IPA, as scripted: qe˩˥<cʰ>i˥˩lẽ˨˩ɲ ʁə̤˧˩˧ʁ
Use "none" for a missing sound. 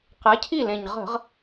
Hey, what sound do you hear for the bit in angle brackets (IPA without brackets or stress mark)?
cʰ